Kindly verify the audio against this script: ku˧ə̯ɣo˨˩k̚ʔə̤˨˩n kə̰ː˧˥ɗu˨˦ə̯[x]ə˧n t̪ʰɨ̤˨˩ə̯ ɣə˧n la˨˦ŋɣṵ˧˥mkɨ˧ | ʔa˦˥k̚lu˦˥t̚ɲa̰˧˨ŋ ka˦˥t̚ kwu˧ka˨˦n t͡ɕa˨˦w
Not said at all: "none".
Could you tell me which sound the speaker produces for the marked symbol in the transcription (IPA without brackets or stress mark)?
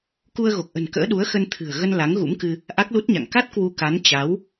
x